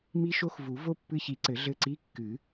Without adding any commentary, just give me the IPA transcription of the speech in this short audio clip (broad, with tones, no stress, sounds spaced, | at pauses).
m i˦˥ ʃ o˦˥ x v u˨˩˦ v o˦˥ pː ɨ˦˨ ç i˨˩˦ ǀ ɘ˨˩˦ ɮ ɘ˦˨ ǀ i˧˥˧ kː ɨ˨˩˦